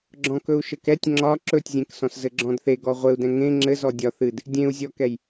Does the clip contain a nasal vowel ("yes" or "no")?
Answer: yes